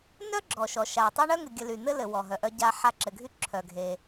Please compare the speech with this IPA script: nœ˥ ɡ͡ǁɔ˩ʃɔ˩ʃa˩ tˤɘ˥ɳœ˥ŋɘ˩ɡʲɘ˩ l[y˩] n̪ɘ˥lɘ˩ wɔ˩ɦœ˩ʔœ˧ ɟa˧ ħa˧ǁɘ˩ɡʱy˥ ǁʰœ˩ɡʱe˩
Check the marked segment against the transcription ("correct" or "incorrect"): correct